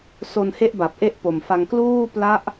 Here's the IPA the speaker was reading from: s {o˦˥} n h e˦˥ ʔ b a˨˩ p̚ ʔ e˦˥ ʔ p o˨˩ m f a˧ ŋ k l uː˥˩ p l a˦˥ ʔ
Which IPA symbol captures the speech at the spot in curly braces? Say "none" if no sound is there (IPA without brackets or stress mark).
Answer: o˧